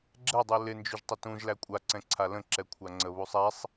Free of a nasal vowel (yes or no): no